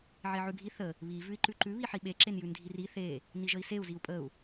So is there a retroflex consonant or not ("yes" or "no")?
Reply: no